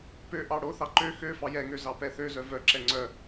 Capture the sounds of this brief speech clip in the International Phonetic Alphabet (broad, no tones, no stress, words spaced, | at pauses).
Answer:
pø ʔɑɽoθɑ ǃø xøfɑ jɛŋø zɑpɛθøzœ vœǁɛ ŋ͡ǀœ